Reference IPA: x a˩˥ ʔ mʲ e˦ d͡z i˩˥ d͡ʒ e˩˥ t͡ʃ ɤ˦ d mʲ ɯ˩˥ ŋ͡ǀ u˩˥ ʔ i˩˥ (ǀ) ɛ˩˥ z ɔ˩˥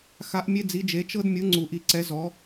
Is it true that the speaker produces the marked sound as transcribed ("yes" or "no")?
yes